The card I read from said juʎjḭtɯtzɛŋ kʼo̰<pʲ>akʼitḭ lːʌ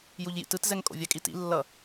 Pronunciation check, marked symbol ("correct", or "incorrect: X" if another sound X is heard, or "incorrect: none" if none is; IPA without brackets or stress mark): incorrect: vʲ